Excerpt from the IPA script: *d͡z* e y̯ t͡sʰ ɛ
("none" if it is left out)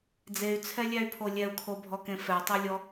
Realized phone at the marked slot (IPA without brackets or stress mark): d͡z